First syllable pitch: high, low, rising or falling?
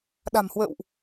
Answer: low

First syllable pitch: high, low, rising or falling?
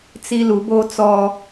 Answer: high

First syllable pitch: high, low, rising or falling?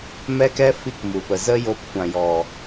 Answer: high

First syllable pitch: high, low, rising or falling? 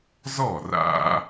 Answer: falling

